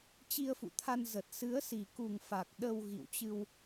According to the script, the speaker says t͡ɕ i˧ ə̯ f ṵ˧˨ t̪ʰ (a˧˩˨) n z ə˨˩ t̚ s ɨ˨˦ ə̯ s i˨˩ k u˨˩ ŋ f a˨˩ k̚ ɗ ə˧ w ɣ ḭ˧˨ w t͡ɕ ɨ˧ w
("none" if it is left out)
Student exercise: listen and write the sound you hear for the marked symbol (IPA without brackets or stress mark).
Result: a˧